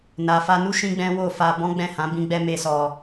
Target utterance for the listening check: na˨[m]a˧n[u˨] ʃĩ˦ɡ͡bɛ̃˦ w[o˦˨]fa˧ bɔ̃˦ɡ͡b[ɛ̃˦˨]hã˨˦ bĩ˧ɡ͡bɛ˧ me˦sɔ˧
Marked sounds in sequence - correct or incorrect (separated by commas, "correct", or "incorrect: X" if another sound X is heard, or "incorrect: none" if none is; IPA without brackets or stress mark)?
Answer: incorrect: f, incorrect: u˦, correct, correct